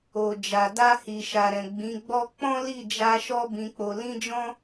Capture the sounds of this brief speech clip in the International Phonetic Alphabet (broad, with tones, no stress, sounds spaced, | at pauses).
o˨ d͡ʒ a˨ d a˧ h i˨ ʃ a˨ ɾ ɛ̃˨ ɡ͡b ĩ˨˦ ɡ͡b ɔ˦ k͡p ɔ̃˦ l i˦˨ d͡ʒ a˧ ʃ ɔ˧ b ĩ˧ k͡p o˧ l ĩ˦ d͡ʒ ɔ̃˦